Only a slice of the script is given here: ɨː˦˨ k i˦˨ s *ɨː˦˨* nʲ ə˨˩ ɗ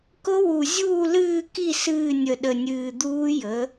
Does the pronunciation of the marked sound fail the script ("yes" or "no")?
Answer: no